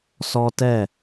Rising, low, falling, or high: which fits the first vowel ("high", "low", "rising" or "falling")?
high